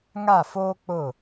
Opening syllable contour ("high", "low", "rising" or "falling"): falling